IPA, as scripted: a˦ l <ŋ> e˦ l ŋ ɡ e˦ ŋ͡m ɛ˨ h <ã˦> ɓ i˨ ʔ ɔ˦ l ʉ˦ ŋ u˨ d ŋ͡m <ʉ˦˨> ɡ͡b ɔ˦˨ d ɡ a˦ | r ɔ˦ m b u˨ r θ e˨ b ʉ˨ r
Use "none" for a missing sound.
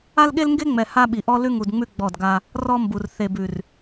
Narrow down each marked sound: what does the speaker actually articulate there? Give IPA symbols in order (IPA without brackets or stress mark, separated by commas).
ɠ, a˦, ʉ˦˨